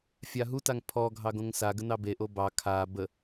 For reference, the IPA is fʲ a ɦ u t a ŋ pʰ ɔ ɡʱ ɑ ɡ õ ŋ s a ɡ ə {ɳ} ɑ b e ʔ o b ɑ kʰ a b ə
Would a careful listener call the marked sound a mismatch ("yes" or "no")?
yes